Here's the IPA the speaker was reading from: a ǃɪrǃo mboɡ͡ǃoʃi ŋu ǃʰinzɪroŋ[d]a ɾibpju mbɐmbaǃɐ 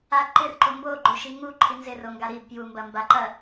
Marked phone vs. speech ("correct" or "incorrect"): incorrect